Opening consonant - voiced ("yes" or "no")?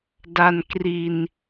yes